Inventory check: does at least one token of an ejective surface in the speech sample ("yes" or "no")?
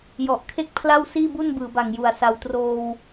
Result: no